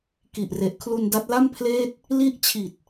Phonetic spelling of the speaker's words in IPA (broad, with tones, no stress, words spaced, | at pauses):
ki˨˩ʔre˨˩ʔ kʰlu˧nda˦˥t̚ la˥˩mpʰleː˥˩t̚ | li˦˥ʔt͡ɕʰi˨˩t̚